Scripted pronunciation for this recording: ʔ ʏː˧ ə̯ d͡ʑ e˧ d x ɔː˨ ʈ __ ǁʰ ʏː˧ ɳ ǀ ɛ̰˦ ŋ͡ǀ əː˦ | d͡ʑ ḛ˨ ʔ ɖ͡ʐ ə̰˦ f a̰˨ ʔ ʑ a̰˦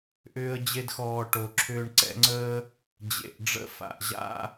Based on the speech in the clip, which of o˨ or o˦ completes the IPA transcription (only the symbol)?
o˨